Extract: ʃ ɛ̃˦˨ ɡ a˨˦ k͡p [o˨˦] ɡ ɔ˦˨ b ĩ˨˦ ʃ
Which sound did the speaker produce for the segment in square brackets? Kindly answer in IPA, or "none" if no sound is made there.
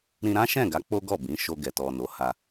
o˦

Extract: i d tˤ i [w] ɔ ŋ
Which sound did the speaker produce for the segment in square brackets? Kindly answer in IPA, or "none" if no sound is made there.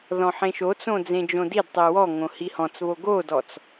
w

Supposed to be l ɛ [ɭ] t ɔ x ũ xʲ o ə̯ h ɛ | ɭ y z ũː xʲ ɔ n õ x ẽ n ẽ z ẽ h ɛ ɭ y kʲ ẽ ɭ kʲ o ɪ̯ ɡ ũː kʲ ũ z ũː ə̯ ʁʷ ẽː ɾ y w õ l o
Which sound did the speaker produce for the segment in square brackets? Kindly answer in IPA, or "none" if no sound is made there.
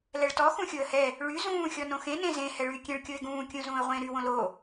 ɭ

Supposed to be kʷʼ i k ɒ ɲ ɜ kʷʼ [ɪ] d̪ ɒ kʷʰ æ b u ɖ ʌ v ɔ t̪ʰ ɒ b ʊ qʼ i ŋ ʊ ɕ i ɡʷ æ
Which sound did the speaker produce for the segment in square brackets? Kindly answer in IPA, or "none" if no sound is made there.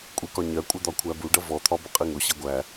ɪ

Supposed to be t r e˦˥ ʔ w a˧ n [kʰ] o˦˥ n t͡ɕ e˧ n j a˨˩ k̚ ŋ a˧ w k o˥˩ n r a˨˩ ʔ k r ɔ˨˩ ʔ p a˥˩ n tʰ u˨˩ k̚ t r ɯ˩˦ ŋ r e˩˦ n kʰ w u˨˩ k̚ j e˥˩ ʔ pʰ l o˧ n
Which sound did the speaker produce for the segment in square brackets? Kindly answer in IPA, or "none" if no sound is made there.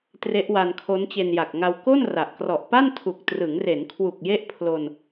kʰ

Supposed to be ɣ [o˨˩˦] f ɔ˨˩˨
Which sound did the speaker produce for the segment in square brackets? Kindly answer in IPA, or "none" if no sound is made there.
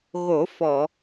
o˨˩˦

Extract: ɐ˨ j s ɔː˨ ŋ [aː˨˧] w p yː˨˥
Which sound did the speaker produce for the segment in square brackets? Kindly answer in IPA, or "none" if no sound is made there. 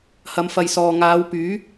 aː˨˧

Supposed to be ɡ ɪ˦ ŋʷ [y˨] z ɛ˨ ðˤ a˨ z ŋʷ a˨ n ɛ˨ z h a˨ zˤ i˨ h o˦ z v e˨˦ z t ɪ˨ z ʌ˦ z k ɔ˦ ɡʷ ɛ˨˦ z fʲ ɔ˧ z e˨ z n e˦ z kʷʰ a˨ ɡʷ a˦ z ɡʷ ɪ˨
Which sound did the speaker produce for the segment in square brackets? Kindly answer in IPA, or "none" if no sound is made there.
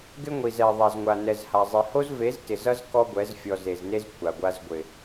i˨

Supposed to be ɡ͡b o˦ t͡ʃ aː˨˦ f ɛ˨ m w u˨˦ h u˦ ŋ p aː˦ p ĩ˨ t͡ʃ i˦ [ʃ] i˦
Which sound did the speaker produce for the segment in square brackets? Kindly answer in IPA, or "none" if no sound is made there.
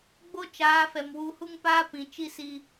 s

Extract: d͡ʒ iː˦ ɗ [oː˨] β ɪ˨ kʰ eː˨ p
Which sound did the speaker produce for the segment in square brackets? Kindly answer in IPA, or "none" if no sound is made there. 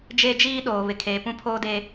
oː˨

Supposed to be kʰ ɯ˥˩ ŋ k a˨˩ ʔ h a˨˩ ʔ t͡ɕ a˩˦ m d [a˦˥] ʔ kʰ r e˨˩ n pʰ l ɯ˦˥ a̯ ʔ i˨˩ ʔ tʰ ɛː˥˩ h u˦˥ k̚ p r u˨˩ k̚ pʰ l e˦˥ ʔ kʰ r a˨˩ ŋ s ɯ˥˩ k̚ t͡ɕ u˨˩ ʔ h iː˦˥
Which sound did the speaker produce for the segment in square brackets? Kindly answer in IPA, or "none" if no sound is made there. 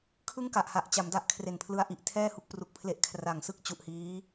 a˦˥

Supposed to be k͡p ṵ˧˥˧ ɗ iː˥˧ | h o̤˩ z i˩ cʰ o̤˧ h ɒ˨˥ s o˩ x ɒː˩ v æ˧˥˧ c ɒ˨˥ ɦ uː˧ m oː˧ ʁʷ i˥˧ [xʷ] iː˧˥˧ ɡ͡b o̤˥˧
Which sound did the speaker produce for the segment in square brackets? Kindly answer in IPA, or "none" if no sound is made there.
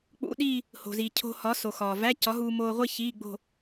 ç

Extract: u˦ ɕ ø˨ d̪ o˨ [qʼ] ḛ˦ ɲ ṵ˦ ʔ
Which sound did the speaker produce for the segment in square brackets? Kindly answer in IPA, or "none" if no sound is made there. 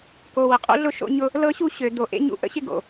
ʔ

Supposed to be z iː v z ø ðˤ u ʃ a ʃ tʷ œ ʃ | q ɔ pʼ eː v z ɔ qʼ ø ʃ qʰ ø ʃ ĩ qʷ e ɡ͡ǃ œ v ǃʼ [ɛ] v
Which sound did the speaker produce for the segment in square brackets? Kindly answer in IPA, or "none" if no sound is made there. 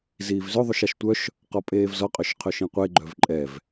ɛ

